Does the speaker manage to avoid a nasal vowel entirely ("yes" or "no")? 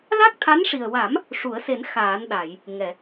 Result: yes